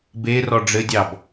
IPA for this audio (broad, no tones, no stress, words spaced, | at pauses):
be rɔɖ͡ʐɘdʲɑb